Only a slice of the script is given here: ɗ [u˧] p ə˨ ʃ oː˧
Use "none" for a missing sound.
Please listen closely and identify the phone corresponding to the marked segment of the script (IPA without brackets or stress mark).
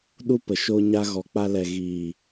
u˦